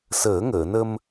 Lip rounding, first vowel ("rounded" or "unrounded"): unrounded